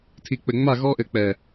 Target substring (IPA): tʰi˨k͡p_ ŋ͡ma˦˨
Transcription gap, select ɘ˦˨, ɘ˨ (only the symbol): ɘ˨